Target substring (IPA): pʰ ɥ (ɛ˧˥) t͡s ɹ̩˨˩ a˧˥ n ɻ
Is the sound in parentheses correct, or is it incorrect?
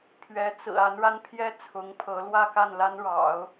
correct